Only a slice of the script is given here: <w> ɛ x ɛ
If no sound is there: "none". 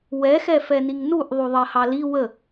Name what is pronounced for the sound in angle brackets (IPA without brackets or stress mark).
w